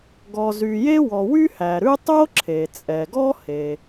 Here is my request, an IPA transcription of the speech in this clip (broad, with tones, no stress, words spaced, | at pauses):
ɡɔ˩zy˩je˥wɔ˩ wy˥hæ˩ɾʉ˥ tˤo˥ǁʰe˩t͡sʼɛ˩ɡɔ˥ he˩